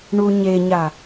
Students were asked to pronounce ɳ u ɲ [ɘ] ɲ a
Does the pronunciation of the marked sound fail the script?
yes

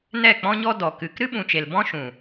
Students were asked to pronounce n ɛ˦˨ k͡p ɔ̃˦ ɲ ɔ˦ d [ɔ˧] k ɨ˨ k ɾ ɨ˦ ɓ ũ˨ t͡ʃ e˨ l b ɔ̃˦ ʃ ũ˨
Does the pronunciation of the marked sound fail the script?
yes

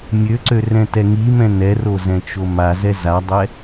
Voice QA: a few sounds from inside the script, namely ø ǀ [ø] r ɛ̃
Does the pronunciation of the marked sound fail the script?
no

